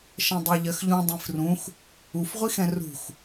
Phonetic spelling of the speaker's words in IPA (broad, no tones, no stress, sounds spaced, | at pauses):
ʃ ɛ̃ dˤ ɜ ʎ ɜ x ʎ ũ dˤ ĩ f r ũ x | u f ʁʷ i x ɛ̃ r ṳ x